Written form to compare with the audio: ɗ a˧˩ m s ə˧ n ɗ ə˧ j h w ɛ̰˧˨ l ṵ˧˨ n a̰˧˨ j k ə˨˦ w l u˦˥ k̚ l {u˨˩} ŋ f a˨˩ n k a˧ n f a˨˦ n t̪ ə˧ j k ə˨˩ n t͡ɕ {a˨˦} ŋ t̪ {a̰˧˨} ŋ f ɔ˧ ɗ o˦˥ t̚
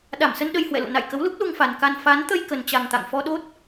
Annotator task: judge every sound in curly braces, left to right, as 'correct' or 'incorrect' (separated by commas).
incorrect, incorrect, correct